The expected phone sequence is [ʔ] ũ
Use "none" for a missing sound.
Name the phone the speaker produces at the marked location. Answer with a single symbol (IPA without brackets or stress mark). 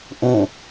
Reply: ʔ